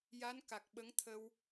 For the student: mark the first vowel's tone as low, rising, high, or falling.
rising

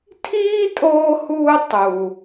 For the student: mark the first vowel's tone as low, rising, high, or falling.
high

